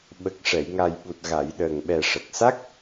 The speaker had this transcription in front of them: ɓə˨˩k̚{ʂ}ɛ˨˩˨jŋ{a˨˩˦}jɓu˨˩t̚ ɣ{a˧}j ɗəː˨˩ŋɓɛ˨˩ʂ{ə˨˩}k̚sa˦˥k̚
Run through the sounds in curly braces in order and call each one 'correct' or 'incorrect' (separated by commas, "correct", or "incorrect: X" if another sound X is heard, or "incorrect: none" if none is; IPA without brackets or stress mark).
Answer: correct, incorrect: a˨˩, incorrect: a˨˩˨, correct